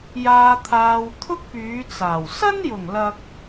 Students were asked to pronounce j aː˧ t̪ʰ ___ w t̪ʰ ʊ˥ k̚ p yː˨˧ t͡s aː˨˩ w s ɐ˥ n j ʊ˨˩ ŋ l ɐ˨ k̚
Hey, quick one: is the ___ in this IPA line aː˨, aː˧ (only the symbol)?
aː˧